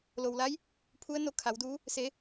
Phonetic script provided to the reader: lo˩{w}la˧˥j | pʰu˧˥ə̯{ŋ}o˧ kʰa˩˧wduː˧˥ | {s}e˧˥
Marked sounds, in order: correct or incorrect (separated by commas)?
correct, incorrect, correct